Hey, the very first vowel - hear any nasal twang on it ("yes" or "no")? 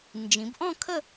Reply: yes